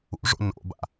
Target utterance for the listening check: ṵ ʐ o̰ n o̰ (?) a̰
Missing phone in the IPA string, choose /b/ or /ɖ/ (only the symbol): b